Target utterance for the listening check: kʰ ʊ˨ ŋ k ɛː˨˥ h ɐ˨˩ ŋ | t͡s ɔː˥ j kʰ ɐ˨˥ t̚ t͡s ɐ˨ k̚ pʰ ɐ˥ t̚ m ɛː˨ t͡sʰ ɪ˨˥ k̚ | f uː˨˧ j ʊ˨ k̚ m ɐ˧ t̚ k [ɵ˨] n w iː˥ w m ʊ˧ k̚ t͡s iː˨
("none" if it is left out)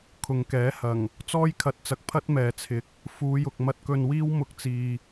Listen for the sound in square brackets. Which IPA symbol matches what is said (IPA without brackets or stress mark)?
ɵ˧